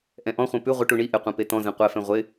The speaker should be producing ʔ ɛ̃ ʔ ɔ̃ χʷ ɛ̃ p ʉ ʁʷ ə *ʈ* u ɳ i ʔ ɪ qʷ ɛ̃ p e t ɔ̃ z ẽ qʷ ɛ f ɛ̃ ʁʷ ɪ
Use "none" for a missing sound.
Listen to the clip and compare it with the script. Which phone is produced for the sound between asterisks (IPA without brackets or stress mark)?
ʈ